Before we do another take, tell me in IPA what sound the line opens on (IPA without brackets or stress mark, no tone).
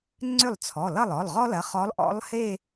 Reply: ŋ͡ǀ